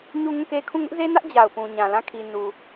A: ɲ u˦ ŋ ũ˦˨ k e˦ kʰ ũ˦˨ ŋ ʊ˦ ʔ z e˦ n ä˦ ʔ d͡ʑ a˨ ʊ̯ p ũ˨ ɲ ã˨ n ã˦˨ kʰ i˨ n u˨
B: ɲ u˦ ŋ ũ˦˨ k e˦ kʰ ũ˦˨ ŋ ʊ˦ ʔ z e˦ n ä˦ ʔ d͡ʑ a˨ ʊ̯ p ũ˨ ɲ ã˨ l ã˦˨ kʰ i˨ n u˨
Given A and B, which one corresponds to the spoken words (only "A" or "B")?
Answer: B